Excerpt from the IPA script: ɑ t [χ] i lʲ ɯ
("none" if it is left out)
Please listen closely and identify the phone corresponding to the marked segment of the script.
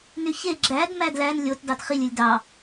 χ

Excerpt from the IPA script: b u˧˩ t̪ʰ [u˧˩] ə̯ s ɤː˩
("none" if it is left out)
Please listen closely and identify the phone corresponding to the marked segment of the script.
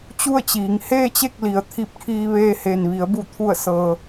u˧˩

